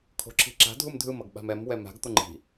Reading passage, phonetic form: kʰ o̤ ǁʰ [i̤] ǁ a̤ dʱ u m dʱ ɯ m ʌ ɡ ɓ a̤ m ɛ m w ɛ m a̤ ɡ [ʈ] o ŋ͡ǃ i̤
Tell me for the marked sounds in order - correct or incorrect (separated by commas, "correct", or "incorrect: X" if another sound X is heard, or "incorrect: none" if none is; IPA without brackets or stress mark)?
correct, incorrect: t̪